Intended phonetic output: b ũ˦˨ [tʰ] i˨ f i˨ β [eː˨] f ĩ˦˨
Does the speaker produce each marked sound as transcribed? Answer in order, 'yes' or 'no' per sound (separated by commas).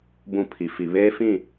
no, no